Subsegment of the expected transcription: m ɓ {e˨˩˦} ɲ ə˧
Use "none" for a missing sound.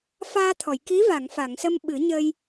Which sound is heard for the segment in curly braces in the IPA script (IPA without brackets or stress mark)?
ɨ˨˩˦